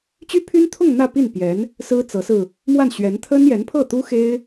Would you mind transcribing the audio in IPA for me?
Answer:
t͡ɕ y˥ pʰ y˥ n t̪ʰ ʊ˥˧ ŋ n̪ ä˥˧ p i˥˩ n p j ɛ˧˥ n | s ɹ̩˥ t͡s ɤ˧˥ s ɹ̩˧ | m w a˥˩ n ɕ ɥ ɛ˧˥ n t̪ʰ ə˥ n j ɛ˧˥ n pʰ ɤ˥˩ t̪ u˥ x e˥ ɪ̯

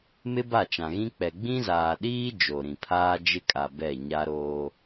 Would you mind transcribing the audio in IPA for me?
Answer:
m ɪ˦ b a˦˨ t͡ʃ ã˨ ɣ ĩ˦ k͡p ɛ˨ ɡ͡b ĩ˦ z aː˨ ɗ iː˦ d͡ʒ o˨ ɾ ĩ˨ pʰ aː˦ d͡ʒ ɪ˦ kʼ a˨ b ɛ˦˨ ɲ a˦ ɾ oː˦

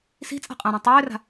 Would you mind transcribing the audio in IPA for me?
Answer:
s i̤ t͡sʼ a̤ qʼ ã ɾ ɛ̃ tˤ øː r a̤

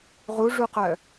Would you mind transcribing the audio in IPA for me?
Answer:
ʁ u ʐ u q œ

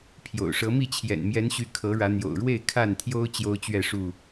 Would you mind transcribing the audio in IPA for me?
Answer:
pʰ j o̰˨˩ ʊ̯ ʂ ɤ˨˦ m i˥˨ t͡ɕʰ j ɛ̰˨˩ n m j ɛ˨˦ n ɕ y˨˦ kʰ ɤ˨˦ ɻ ä˨˦ n̪ j o̰˨˩ ʊ̯ ɻ w e˥˨ ɪ̯ kʰ a˥˨ n t̪ʰ j o˦ ʊ̯ t͡ɕ j o˦ ʊ̯ t͡ɕ ɥ ɛ˥˨ ʂ u˥˨

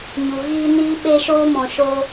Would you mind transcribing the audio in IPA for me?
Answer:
ɲ u˨ ɣ iː˧ n iː˧ ɓ e˧ ʃ oː˧ m ɔ̃˨ ʃ o˧

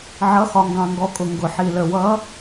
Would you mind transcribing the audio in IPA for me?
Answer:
ʕ ʌ˩˧˩ x ɒ˩ ŋ ɡ ɑ̃˩ ŋ ɡ ɔ˩ kʼ ʊ˩ ŋ ɡ ʊ˩ ħ i˩ l ə˩ w ʌ˨˦

